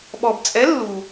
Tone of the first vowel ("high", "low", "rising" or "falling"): low